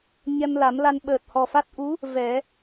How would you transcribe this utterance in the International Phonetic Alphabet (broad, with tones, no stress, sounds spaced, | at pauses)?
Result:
ɲ ɛ˧ m l a˨˩˦ m l a˧ n ɓ əː˨˩ t̚ h ɔ˨˩ f a˦˥ t̚ ʔ u˧˥ | v ɛ˨˩˦